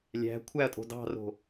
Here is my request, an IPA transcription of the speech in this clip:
lʲ æ̤ kʷʰ æ ɐ̯ tʼ o̤ d ɑ̤ r o̤

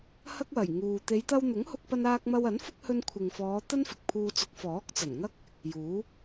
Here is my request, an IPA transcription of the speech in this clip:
h ɐ˥ k̚ w ɐ˨˩ j ŋ uː˨ t̪ e˨˧ j t̪ ɐ˧ w n̪ ʊ˨˥ ŋ h ʊ˧ k̚ p ɐ˧ n aː˧ k̚ m ɐ˧ w ɐ˨˥ n f ʊ˥ k̚ h ɵ˧ n kʷʰ ɪ˨ ŋ f ɔː˨˧ t̪ ɐ˥ n f ɪ˨ k̚ pʰ uː˧ t͡s ʊ˨˥ k̚ f ɔː˨˥ k̚ t͡s ɐ˨˩ n ŋ ɐ˥ k̚ | j uː˨˥

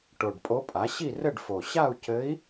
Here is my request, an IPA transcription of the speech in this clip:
ʈ o˨˩ ɖ pʼ o˧˥ pʼ a˩˥ ɕ i˥˨ r ɘ˥˨ ɖ f o˨˩ ɕ a˥˨ u̯ c ɘ˧˥ i̯

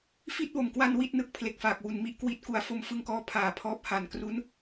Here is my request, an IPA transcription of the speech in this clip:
f i˥˩ t̚ w o˨˩ m k w a˧ n w i˥˩ t̚ n ɯ˦˥ k̚ pʰ l e˨˩ k̚ f aː˨˩ k̚ w u˨˩ n m i˥˩ ʔ k w i˦˥ t̚ k u˨˩ a̯ f o˧ m f ɯ˧ ŋ k ɔː˦˥ pʰ aː˨˩ pʰ ɔː˦˥ p̚ h a˨˩ n k r u˦˥ n

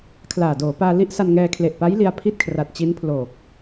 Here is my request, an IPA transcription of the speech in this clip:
kʰ l aː˨˩ d oː˩˦ p aː˧ l i˦˥ ʔ s a˧ n ŋ ɛː˧ kʰ l e˨˩ ʔ p a˦˥ j l i˧ a̯ pʰ i˥˩ t̚ kʰ r a˨˩ t̚ t͡ɕ i˦˥ n pʰ l oː˨˩ k̚

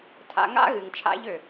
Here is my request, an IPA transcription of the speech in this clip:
tʰ a̰˧ ŋ a̰˦ ɣ ɨ˨ ŋ t͡ʃʰ a̰˦ ʎ ø˨

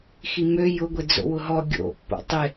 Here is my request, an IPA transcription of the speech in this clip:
x i m ø j ʊ ɡʷ e d͡z o̰ w ʊ ɦ ɔ ɡʲ o̰ pː o̰ tˤ ɪ

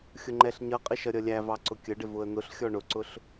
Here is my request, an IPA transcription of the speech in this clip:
xʲ ʊ ŋ͡ǃ ɛ ɬ ɲ ʌ qʼ ɪ ʃ ʌ ɾʲ ʌ lʲ æ v ɑ ǀ ʊ kʲ ə ɖ ɪ v ʊ ə̯ n̪ ʊ ɬ xʲ ɔ ɳ ʊ ǀ ʊ ɬ

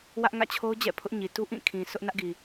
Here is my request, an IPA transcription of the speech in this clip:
w ä˦ ʔ ŋ ä̰˦˨ t͡ɕʰ o˦ ʊ̯ d͡ʑ ɛ̰˦˨ pʰ ʊ˦ ʔ ɲ i˨ t u˦ ʔ ĩ˦˨ kʰ ĩ˨ s ʊ˦ ʔ n ä˦ ʔ ɡ i˨

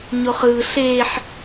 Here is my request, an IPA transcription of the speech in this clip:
ɲ o χ ɯː ɬ eː ħ

